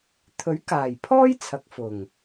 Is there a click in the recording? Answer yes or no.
no